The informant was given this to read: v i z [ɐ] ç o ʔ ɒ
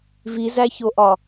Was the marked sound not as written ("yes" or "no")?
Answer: yes